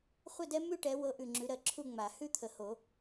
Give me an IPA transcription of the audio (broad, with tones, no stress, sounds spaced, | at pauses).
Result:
χʷ ə˥˨ d ɛ˦ m ʉ˥˨ ʈ ɛ˨˦ w ɤ˨˦ ʔ ʉ˨ ŋ͡ǁ ʉ˨˦ ɾ ɜ˨ ǁʰ u˥˨ ŋ͡m a˨˩˦ h ʉ˥˨ t̪ʰ ə˨ h o˨˩˦